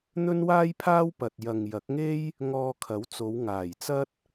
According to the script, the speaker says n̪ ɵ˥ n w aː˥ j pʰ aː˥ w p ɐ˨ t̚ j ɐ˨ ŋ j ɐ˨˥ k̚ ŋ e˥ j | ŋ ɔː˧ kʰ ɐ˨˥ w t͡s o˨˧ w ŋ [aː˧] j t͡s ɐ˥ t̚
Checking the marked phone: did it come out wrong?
yes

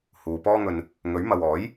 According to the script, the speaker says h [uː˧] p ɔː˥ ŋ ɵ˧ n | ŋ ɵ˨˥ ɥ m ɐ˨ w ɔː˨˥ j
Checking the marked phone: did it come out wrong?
yes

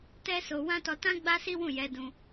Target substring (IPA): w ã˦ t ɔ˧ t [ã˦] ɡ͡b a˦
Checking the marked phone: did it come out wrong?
no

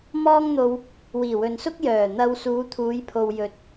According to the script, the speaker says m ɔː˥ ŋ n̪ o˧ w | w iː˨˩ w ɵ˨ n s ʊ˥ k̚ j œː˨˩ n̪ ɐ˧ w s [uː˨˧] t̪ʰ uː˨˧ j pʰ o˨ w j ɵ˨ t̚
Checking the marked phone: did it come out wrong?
no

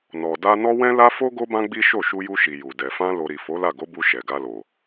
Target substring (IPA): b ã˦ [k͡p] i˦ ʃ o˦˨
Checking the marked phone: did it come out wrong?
yes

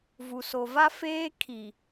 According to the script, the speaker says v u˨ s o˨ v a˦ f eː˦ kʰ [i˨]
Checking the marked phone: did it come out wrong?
no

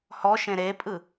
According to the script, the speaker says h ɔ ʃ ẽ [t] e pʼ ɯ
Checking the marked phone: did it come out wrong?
yes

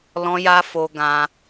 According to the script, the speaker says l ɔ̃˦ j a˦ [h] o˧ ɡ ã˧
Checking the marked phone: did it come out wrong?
yes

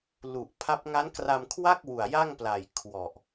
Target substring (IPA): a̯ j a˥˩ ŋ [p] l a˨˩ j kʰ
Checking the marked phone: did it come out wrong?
no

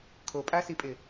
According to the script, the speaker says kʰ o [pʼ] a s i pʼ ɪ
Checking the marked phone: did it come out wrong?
no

